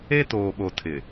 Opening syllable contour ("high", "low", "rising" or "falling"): high